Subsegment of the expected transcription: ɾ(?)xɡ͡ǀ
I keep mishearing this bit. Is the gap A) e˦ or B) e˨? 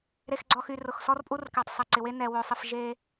B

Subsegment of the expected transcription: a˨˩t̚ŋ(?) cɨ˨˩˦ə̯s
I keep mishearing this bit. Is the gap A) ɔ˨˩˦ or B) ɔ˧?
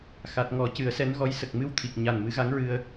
A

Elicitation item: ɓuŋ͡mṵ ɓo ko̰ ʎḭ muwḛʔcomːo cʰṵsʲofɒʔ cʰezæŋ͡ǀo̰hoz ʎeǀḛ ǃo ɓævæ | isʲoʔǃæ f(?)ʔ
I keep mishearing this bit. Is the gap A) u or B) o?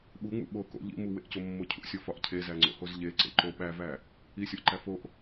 B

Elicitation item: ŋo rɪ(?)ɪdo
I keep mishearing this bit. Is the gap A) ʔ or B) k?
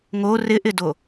A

